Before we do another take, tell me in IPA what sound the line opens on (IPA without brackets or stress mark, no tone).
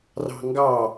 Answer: r